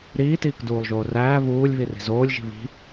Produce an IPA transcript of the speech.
ɾiːtiːkduːlˠʒoː ræː βuːlʲβiri̤ zoːlʲʒi̤ βi̤

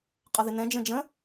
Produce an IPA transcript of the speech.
qʼʌðɪnɛ̃ d͡ʒə̃d͡ʒə̃

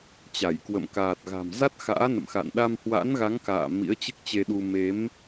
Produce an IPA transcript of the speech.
t͡ɕa˧˩jkwə̰˧˨m kaː˨˩t̚ɣa̤˨˩m za˦˥t̚xa̰ː˧˥nə̰˧˨mxa̰˧˨n ɗa˧mhwa̰˧˥nɣa˨˦ŋka̰ː˧˨ mḭ˧˥ə̯t͡ɕɨ˦˥k̚t͡ɕe˧ɗu˧ me˨˦m

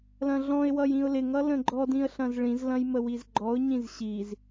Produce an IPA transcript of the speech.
lɐ̃ɮɔ̃ɪ̯wʌj ĩʊ̯lɪŋʌ lə̃ɡ͡ǃɔdĩə̯ ɬɐ̃zɭĩzlɐ̃j məwizɡ͡ǃɔʊ̯ɲĩz ɕiz

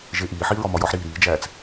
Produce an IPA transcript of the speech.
ʒeʔiːħiː ɹɒmɒjɒħɾiː ɾiːd͡ʒæːt͡s

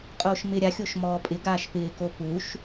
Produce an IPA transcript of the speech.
qʼoːʃmɪ ɾʲaxʲoʃ mɔːpʼɪ ɡaːʃpɪːko puʃ

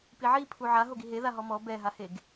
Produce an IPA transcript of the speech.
piʕi pʰuʕa ɦoɡiɦeða ɦɔmɔ bɛɦaheɡ

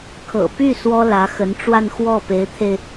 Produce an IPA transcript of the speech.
kʰɤ̰˨˩py˥˩ swɔ˥ lä˧˥xə˧˥n ʈ͡ʂwa˥˧nxwɔ˥˩ pe˧˥ɪ̯t̪ʰe˧ɪ̯

